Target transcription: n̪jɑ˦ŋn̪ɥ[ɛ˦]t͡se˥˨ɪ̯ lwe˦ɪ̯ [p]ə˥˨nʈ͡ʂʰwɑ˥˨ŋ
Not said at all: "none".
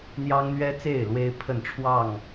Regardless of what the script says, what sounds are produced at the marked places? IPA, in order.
ɛ˦, pʰ

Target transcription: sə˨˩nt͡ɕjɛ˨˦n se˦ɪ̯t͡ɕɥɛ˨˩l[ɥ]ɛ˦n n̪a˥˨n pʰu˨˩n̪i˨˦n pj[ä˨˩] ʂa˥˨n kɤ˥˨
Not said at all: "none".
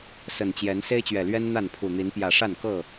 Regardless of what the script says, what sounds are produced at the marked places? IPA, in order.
ɥ, ä˨˩

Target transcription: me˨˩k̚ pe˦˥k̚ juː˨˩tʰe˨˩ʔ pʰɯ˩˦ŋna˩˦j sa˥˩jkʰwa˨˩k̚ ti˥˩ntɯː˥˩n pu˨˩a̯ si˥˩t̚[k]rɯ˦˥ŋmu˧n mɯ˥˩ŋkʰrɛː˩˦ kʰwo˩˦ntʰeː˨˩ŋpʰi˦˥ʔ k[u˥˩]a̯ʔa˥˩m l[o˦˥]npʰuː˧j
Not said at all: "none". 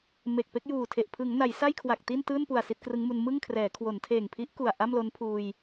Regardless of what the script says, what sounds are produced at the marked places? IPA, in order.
k, u˨˩, o˦˥

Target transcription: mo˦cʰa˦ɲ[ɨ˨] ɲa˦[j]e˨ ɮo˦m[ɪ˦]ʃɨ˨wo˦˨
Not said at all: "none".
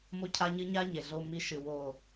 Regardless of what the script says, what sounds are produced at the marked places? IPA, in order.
ɨ˦, ɲ, i˦

